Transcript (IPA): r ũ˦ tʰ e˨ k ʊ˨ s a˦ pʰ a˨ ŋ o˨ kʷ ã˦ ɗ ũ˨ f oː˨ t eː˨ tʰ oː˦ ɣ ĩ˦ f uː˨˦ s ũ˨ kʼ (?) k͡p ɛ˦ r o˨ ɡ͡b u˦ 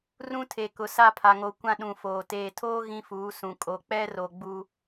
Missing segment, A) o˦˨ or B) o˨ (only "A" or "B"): B